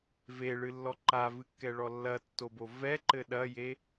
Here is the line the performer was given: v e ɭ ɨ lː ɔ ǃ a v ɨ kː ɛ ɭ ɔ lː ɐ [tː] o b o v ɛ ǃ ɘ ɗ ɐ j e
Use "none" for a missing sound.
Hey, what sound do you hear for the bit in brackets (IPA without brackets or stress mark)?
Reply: tː